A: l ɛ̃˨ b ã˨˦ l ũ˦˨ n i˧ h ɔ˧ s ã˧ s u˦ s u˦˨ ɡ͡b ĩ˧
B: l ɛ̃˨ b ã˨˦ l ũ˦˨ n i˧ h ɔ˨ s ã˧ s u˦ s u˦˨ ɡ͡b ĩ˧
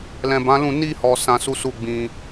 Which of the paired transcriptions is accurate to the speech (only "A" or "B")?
B